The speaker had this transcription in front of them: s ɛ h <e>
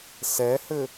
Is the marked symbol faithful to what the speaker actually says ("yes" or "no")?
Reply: no